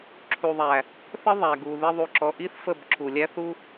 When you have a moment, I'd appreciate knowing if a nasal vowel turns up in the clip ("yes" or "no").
no